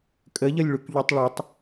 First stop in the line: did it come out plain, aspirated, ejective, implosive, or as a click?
ejective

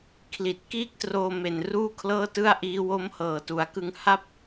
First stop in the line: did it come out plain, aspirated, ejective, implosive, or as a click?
aspirated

